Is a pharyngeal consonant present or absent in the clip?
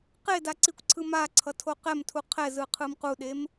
absent